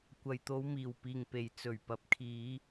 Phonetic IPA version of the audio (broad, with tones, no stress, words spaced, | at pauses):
kʷɐ˨jt̪o˨˧wmiː˨˩w piː˨˩ŋpe˨˩j t͡sɵ˨˩ɥpɐ˨˥p̚kʰiː˨˧